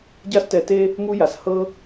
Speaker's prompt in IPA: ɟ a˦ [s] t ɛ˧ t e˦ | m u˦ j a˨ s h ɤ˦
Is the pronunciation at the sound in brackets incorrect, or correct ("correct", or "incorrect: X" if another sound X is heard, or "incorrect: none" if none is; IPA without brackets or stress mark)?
correct